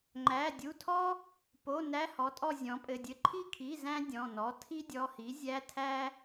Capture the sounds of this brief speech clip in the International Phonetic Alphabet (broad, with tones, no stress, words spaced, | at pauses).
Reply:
ŋ͡ǃæ˩˧˩dʲu˩˧˩tʰɔ˥ | po˩˧˩ næ˧˥˧hɔ˩˥tʼɔ˦˨ zʲɔ̃˩˥pʼɘ˩˧˩dʲɘ˦˨ ǃʰi˦˨kʰi˩˧˩ zæ̃˥dʲɔ̃˩˧˩nɔ˩˧˩ tʰi˥dʲɔ˩˧˩hi˩˥ zʲæ˧˥˧tʰæ˥